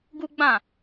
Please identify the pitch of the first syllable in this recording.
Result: high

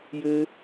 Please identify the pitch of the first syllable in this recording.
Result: high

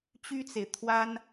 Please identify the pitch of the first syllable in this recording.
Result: high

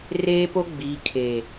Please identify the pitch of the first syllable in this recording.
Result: high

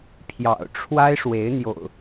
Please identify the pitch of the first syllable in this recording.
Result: low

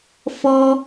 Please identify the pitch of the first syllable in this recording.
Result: high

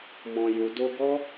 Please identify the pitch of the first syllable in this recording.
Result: low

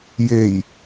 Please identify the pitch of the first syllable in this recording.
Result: low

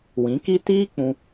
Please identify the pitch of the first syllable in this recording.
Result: rising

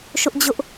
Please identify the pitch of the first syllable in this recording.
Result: high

